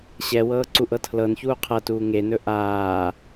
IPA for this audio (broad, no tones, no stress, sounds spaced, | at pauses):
ɕ ɛ w ɤː ǀ u ʔ ɤ tʰ l ɤ n ç uː qʰ ɤ t uː ŋ e n ɵ ʔ aː